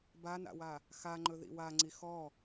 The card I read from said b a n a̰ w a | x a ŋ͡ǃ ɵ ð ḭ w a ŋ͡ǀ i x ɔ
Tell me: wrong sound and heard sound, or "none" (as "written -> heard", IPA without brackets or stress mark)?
none